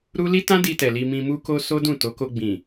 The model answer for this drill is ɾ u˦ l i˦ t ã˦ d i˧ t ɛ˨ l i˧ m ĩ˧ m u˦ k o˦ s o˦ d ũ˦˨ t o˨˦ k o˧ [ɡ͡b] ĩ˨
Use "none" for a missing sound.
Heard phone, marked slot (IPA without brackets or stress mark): ɡ͡b